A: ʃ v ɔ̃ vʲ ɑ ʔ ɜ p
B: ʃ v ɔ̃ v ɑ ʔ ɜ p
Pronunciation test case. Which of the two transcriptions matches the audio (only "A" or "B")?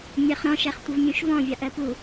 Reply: A